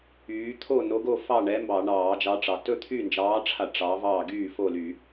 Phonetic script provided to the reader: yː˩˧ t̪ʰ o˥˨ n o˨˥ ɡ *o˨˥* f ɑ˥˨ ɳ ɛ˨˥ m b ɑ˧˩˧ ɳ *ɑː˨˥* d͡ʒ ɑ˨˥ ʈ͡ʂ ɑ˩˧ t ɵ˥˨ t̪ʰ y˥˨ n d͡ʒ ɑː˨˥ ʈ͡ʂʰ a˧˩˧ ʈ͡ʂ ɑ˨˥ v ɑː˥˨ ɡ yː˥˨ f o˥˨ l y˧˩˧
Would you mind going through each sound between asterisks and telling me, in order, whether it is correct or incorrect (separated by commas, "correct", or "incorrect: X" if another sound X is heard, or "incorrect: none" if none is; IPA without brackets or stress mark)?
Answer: incorrect: o˥˨, incorrect: ɑː˧˩˧